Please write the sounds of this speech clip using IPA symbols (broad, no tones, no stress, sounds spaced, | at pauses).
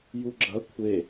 j u ɡ͡ǁ ɐ kʷʰ e